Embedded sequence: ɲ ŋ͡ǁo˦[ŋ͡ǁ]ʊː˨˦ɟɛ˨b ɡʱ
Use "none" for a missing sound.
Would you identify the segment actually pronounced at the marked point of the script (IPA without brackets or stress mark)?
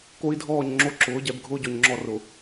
ǁ